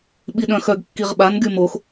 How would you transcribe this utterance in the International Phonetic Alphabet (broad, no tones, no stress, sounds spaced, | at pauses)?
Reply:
ɓ i ɗ œ̃ x œ ɡ kː i ʁ ɓ a n ɡ y m o x